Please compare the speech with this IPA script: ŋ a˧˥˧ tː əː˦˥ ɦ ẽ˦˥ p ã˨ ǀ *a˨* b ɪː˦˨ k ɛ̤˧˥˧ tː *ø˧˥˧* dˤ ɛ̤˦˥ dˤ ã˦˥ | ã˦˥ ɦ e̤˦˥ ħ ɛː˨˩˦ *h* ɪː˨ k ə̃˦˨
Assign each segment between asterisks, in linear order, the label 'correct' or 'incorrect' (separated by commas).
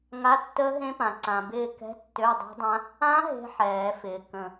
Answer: incorrect, correct, incorrect